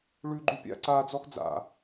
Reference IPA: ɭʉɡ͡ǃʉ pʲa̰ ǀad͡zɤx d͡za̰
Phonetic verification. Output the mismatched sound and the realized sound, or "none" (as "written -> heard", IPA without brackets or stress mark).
ɤ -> ɔ